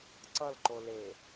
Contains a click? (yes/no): yes